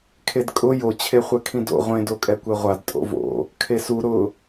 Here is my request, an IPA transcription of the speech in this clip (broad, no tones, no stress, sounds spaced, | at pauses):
kʰ e d kʼ ʊ j o t͡ɕʰ e χʷ ɛ kʰ ĩ d o̰ ʁʷ ẽ d o kʼ ɛ kʷ ɛ ʁʷ a d tʼ o̰ v o̰ | kʰ e s u ɾ ʊ